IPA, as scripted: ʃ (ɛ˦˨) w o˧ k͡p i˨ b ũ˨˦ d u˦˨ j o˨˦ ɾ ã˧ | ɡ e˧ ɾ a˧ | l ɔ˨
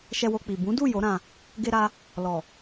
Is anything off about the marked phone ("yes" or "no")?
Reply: yes